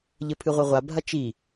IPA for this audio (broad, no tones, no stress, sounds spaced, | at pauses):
ʎ ɘ pʰ ɨ ʁʷ ɘ ʁʷ a bʱ ɐ t͡ʃ i